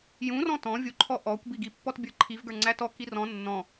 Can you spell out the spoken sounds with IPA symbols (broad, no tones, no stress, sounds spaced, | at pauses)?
j ũ r ɔ̃ t ɔ̃ vʲ u ǃʰ ɔ ʔ ɔ kʷ b i ɡ i pː ɔ t bʲ ə˞ ǃʰ i v ɡ ə˞ ŋ͡ǀ æ t ɔ k i r ɔ̃ nː ɔ̃